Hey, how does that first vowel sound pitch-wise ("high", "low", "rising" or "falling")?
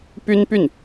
high